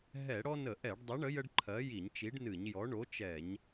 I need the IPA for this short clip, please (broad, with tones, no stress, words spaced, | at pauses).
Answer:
ɦɛ˧˩˧ɽɔ˦nə˧˩˧ʔɛ˧˩˧ɖ dˤɐ˨˥ɳə˨˥ jə˦ɖǃʰɜ˨˥ji˧˩˧ɲ t͡ʃi˨˥ɖnɨ˧˩˧ɲjɔ˨˥ ɳo˨˥t͡ʃɛ˧˩˧ɲ